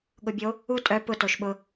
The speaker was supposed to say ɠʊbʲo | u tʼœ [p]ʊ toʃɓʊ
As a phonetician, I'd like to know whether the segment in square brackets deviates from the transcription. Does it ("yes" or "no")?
no